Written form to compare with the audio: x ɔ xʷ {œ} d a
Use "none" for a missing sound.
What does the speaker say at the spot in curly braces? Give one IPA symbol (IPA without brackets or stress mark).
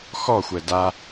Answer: ɛ